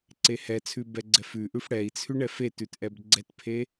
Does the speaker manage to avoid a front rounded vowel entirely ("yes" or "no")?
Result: yes